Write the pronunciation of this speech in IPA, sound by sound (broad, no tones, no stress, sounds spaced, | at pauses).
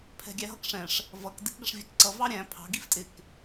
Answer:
pʰ ɛ̤ ɡʲ æ ɦ ʌ k ʂ ɛ̃ ʂ | v ʌ k d ɪ k ɡ ʌ ʂ vʲ ɛ k ǀ ʌ v ɑ ɾʲ æ̃ pʰ ɑ̤ ɡ i f tʼ ɪ k